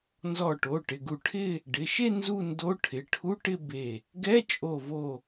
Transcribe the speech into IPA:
nzɔ˧˩ʈo˩˧˩ʈɪ˩˧˩ɡu˧˩ ʈʰɪ˥˧ | ɖɪ˩˧˩ʃe˥˧ nzu˥˧ndo˧˥˧ ʈʰɪ˩˧˩ʈʰu˧˥˧ʈɪ˥˧ be˧˩ | ɡɛ˧˥˧t͡ʃʼo˧˩vo˧˩

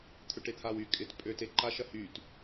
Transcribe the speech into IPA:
t̪ʰʏʈet̪ʰawy kʼɪt pʼøteǃa ʃɐhyt

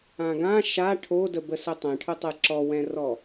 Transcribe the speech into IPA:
ãɡã ʃa ʈʰodəbəsə tˤɛ̃ʈʰʊtˤɨ ǁɔwɛ̃rɔ

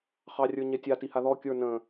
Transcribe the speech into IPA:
χɑrʲə˞ɲɛtʲa tihaðɔ kʲə˞ nə̃

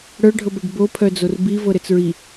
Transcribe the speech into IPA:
ɽœɖʱɤbɛɖ bopʰœd͡zor bivɤɾɘt͡s ɹi

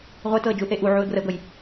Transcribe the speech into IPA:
ʁʷetɤə̯d͡ʒuθe ʔuʕuə̯ɡrəʊ̯ɡɤj

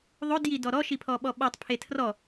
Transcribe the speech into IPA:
ðˤodji dɔɾɔʃi pʰɔɓɔɓɔtˤpʰe tʰrɔ

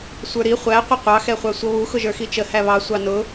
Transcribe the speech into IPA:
sʷə˞ɾi χʷæ qʷəqʷɑ xɛχʷɑsʷʌβu xʊʒə˞xit͡ʃə hæβɑ sʷɑnʊ

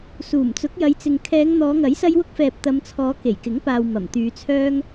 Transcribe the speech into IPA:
suː˨˩mt͡sʊ˨˥k̚jɐ˨˧jt͡sɪ˨ŋ kʰɛː˨˧ŋn̪ɔː˨˧ŋɐ˨˥j sɐ˥jwʊ˥k̚fɛː˧p̚ t̪ɐ˨˧mt͡sʰɔː˨˧ ke˨˩jkɪ˨˥ŋ paː˧w mɐ˨˩mt̪yː˨˧t͡sʰœː˥ŋ

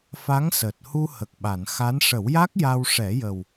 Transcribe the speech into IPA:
fa˧˥ŋ səː˨˩t̚hu˧ hə˨˩k̚ɓa˨˩˨n xa˧˥n ʂə˨˩˦wja˦˥k̚ ja˧wʂɛ˨˩˦jə˨˩w

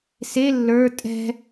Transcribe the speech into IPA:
se lːə˞ tʼɛ̤

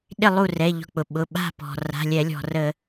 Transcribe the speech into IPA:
ɗɪ˥˨lˠu˥˨ rɛ˩˧˩ʎɔ̤˧˩k͡pʊ˩ ɓʊ˩˧˩ ɓa̤˥˨pɔ̤˩ ra̤˩˧˩lʲɛ˧˩˧ lʲɔ̤˩rə˧˩˧

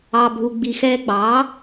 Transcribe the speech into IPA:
ɑ˩bʱu˩ ɡ͡bi˩xɛː˧ɡ͡bɑː˩˥

